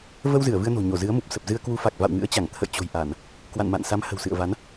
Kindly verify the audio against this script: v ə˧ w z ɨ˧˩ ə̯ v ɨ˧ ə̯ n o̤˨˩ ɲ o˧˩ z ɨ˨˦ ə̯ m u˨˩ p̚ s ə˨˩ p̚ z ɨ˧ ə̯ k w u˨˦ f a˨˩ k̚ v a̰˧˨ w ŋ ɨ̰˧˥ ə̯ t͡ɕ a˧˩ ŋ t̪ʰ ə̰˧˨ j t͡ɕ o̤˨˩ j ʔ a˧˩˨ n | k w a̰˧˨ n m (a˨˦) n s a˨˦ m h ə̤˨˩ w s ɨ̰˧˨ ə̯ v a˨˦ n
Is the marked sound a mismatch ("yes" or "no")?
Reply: yes